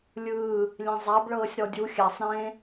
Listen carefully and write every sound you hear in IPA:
lʲ ɯː | lʲ ẽ zˤ a b ɭ ɤː sʲ ɾ ɔ dʲ u xʲ a sˤ ɾ ẽː

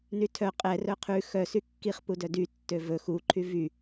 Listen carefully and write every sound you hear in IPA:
n y tʰ œ qʼ ɛ r œ qʰ ʉ x œ s y kː i χ p u d œ d y tː ø v ɵ x u ǃʰ y v y

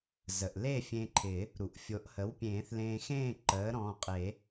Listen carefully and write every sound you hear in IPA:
z ə˩ ʔ l e˥˨ fʲ ẽ˧ ǃʰ ɪ˨˩˦ | ɾ u˩ ʔ fʲ o˩˥ ʔ h ə˩˥ w pʲ ẽː˨˩˦ θ l ẽː˧ x ẽː˥˨ ǃ əː˩˥ ɾ ɔ̃ː˩˧˩ qʼ e˨˩˦

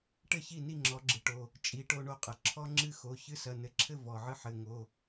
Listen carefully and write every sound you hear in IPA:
ʈ ɘ˥˨ ç i˥˨ n i˥˨ ŋ͡ǁ ɔ˨˥ ɡ͡ǁ ɨ˩ ʈ o˩˧˩ | t͡ʃʼ i˨˥ ʈ o˦ ɳ o˦ qʼ ɘ˩ ǁʰ ɔ˦ ŋ͡ǁ ɨ˦ x o˩˧˩ ç ɨ˦ s ɐ˩˧˩ n ɘ˨˥ ǁʰ ɘ˥˨ v ɔ˩ ʕ ɨ˦ ħ ɘ˩˧˩ ŋ o˩˧˩

